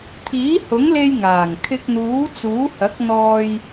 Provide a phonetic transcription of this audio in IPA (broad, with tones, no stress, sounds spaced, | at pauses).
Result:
t̪ʰ iː˨˥ h ʊ˨˥ ŋ l e˧ j ŋ aː˨˩ ŋ kʰ ɪ˧ k̚ n̪ uː˨˥ t͡s uː˨˥ h ɐ˨˥ k̚ n̪ ɔː˧ j